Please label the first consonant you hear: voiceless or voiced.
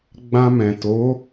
voiced